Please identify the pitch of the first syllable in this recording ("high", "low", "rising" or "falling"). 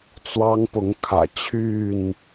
high